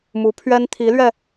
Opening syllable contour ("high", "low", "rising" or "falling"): rising